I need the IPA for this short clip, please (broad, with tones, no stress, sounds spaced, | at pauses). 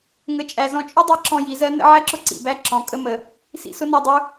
ŋ ə˩˧ t͡ʃʼ æ˩ z ɔ̃˧ t͡ʃʼ ʊ˥ dˤ i˧˥ ǁ ɔ̃˧ j i˩˧ z ɜ˧˥ n ə̰˧˥ ʕ æ˥ ǁ ʊ˥ ǀ ḭ˩ b æ˧ ǁ ɔ̃˩˧ kʼ ə˥ m ə˩˧ | s ḭ˧˥ s ʊ˧˥ n ɒ˧ dˤ u˧˥